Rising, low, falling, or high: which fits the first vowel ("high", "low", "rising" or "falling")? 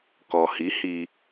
low